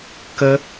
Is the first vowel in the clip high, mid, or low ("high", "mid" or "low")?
mid